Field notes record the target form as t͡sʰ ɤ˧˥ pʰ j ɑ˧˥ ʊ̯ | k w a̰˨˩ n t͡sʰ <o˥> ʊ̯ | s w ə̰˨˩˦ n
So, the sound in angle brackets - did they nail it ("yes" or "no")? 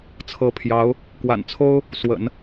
yes